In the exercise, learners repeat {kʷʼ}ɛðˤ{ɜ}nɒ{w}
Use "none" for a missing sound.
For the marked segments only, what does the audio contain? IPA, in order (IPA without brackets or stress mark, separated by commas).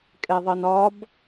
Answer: kʼ, ɜ, b